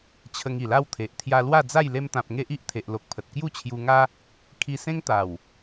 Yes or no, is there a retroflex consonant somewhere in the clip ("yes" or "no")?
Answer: no